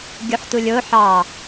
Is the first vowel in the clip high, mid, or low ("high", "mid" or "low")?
high